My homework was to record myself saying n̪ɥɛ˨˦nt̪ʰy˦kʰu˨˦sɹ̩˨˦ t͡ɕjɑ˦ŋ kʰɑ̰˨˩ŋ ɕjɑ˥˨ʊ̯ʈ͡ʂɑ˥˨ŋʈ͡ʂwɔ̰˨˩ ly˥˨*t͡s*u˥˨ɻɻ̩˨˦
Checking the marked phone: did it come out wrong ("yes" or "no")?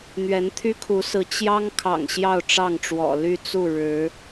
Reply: no